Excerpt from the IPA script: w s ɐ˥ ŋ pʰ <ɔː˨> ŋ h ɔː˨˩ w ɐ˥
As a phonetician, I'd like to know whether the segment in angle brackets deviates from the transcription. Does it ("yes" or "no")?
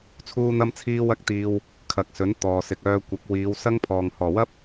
no